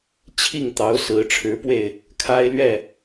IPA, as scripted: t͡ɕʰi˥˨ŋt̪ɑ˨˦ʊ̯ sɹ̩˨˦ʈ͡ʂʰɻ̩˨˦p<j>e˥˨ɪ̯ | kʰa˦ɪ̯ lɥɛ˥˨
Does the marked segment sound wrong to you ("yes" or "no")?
yes